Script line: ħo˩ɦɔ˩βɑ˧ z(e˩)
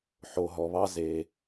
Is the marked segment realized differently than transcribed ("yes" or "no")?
no